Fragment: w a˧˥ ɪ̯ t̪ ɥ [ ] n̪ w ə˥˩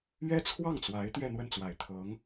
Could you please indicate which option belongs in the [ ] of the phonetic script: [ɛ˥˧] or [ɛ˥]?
ɛ˥˧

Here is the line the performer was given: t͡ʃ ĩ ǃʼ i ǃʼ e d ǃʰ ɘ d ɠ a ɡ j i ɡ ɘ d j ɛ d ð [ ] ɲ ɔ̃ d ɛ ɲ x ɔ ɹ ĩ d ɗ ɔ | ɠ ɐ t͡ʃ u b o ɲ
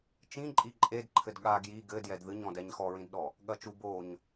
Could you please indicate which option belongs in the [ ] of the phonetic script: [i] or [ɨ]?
ɨ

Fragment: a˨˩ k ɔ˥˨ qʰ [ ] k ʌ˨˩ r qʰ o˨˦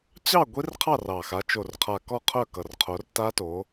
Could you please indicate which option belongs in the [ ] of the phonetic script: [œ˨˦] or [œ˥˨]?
œ˥˨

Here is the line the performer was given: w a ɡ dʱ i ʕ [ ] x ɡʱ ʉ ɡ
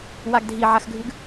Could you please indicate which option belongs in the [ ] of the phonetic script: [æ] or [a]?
a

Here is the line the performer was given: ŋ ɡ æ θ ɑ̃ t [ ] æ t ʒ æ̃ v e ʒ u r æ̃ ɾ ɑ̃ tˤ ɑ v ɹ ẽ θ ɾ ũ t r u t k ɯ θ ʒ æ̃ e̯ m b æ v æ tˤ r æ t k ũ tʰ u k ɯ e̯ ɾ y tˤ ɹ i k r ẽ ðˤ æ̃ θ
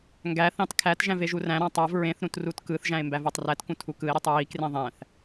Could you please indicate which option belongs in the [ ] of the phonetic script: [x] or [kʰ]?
kʰ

